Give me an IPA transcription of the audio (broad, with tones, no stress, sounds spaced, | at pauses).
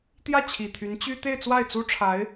t̪ j ä˥˩ t͡ɕʰ i˨˩ t̪ʰ y˧˥ n t͡ɕ y˥ t̪ e˥˧ ɪ̯ t͡s w a˥˩ ɪ̯ t͡s u˥ ʈ͡ʂʰ a˧˥ ɪ̯